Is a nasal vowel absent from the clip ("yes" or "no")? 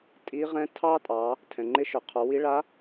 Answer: no